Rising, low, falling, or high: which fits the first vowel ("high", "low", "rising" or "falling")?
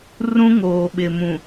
high